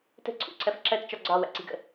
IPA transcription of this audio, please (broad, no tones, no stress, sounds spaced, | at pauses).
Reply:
t ə̤ ǀʰ ṵ ǀʰ ɜ f ǁ ɜ t t͡ʃ ɒ ɡ͡ǀ ɒ w æ̰ ǀ i̤ ɡ ə̰